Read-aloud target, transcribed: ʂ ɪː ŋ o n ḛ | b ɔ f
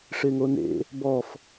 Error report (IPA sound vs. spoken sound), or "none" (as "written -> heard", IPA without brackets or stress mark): none